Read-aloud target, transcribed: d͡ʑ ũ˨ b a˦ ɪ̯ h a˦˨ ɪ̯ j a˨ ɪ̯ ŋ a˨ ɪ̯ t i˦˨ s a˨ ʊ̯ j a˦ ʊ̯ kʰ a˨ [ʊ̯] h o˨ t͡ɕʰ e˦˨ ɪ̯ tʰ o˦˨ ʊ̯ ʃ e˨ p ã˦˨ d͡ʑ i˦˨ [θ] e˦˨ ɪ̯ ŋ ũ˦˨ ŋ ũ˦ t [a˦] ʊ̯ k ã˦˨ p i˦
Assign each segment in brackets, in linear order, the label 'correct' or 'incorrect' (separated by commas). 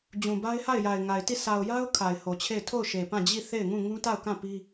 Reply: incorrect, correct, incorrect